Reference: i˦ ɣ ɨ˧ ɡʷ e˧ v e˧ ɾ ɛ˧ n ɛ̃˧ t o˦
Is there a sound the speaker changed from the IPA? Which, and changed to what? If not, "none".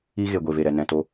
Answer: ɨ˧ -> e˧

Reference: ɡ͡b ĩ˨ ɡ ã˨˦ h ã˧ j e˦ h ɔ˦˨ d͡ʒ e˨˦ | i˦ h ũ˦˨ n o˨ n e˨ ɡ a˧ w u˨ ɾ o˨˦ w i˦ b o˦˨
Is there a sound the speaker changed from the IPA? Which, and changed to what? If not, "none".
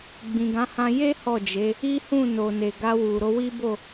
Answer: none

